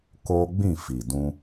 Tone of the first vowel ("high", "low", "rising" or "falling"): high